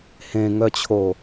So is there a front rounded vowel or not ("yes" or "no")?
yes